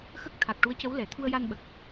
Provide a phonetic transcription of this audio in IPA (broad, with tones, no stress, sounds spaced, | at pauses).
x ə˦˥ k̚ t̪ʰ a˨˩ k̚ ʈ u˧˥ ə̯ c ə˧˥ w l ɛ˨˩˨ t̪ʰ u˧ ə̯ j a˧ n ɓ ə˨˩ k̚